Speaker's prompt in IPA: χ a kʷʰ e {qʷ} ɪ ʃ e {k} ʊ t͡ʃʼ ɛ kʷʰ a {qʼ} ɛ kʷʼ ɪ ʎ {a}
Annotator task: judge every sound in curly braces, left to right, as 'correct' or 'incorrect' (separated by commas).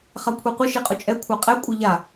correct, incorrect, correct, correct